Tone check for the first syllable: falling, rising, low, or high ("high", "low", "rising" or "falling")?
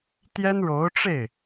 high